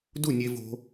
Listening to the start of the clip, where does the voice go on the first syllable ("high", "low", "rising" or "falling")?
falling